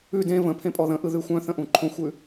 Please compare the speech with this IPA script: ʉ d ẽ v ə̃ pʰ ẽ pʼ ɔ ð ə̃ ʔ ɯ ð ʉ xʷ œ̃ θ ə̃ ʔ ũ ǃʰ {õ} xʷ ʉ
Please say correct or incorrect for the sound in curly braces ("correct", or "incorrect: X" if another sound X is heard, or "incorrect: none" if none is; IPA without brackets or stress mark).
correct